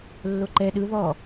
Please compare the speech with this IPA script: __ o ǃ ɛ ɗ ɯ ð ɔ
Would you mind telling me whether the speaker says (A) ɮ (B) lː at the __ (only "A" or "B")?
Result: B